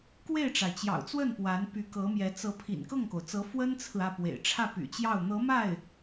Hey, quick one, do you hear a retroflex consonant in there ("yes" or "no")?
yes